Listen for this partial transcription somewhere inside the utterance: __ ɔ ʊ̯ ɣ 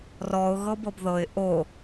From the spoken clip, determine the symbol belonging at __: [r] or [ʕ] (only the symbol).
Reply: r